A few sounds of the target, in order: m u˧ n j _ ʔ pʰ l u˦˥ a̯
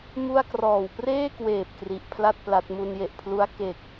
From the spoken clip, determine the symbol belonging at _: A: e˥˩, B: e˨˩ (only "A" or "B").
B